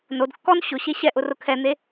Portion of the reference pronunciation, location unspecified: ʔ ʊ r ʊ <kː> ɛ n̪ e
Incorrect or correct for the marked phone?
incorrect: kʰ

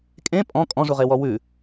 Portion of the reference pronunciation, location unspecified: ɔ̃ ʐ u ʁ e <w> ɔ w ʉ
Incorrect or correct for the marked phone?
correct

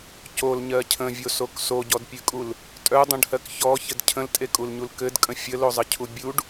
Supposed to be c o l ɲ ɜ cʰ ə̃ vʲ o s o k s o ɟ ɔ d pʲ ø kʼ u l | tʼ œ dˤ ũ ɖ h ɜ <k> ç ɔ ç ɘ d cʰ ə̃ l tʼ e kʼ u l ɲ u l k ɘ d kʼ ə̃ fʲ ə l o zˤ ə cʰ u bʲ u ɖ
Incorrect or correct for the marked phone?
correct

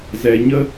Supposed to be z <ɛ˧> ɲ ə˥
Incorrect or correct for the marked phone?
correct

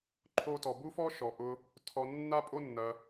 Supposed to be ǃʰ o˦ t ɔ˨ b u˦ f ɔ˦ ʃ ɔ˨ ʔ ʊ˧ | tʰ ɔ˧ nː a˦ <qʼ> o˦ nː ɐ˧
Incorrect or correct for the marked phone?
incorrect: pʼ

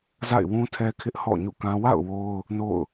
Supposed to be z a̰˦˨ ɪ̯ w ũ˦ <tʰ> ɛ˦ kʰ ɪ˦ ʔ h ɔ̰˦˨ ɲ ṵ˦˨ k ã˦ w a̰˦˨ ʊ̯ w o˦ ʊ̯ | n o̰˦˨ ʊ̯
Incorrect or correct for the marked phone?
correct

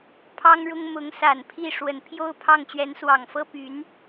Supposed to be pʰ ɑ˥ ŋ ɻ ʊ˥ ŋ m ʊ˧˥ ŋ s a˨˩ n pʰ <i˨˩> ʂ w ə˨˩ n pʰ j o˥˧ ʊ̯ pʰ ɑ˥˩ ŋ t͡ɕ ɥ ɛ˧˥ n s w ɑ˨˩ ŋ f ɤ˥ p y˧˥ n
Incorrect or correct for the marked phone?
incorrect: i˥˩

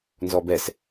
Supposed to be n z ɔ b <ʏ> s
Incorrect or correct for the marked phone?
incorrect: ɛ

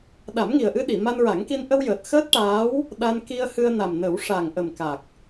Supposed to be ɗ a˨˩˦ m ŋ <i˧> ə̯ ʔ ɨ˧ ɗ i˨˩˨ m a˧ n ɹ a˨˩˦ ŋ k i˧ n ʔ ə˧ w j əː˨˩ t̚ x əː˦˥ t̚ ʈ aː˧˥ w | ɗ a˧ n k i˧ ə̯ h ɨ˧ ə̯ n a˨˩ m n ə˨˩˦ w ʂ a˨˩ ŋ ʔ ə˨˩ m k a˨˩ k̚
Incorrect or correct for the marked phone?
incorrect: i˨˩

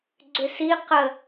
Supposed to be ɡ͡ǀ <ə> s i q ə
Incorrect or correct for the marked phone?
incorrect: ʏ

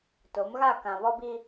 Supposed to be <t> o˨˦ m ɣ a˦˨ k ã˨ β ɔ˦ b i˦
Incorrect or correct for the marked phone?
correct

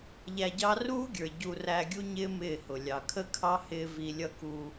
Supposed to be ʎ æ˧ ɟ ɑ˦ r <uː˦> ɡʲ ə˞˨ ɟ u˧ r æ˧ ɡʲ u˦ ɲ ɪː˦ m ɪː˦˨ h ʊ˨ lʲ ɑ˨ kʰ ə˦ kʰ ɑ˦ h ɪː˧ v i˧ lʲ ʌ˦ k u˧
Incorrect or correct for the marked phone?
correct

